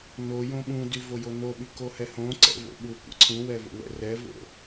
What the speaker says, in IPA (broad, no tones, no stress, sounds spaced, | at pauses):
n o j õ ɓ ũ d y v o j o n o ɓ y k o h ɛ h õ ǀ ɛ̰ v o̰ ɓ u kʷ ɛ̰ ǀʰ ũ w ɛ v o̰ w ɛ̰ r ɛ v o̰